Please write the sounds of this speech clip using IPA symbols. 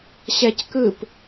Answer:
ɕɛc kɯp

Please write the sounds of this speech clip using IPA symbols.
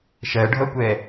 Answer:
ʃɜɖʱʌkʷɛ

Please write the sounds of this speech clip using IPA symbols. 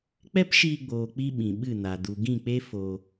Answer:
k͡pɛ˦pʃiː˧ɡ͡boː˨ k͡pi˦ɓĩ˨ɓɨ˦˨na˨ du˨ɡĩ˦˨k͡pe˦ fo˧

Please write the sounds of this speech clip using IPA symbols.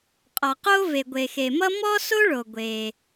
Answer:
qʼɔ˩qo˥ ve˩ɡʷe˩xe˩mʌ˥ mɔ˥so˥ɭo˩ ɡʷe˩

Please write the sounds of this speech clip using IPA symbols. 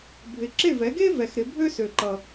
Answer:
bʱɪ˨ǁe˦˨vɛ˨˦ɡe˥ vɛ˨xɾɪ˨˦ bʱø˥sø˨ǃʌ˨

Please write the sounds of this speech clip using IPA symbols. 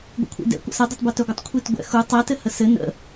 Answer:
ɡʷḭkʷʰḭdɛ̰ kʷə̰sɘ dˤutˤbœtœɡʷətˤ kʷʰitɡʷɛ̰xu tˤɛ tɘhəsɘ nə̰

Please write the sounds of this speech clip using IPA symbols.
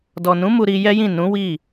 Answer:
dɔ˨nũ˨˦ mu˧ɾi˧jɛ˦jĩ˦˨ nũ˨˦wi˦˨

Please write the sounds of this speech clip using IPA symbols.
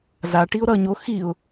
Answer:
za ʈiʊ̯ɾʌ ɲo xiʊ̯

